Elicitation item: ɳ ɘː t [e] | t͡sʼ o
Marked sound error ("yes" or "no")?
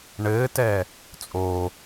yes